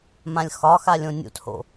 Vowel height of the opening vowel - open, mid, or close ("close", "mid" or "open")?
open